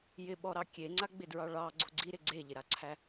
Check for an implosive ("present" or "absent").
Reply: present